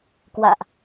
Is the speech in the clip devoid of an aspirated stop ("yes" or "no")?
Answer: yes